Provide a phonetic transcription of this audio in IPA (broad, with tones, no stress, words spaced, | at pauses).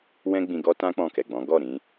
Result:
wɛ̃˦ɡ͡bĩ˧ɡɔ˦ tã˦ k͡pɔ̃˦˨kɛ˨ɡ͡bɔ̃˨˦ ɡɔ˦˨ɾĩ˧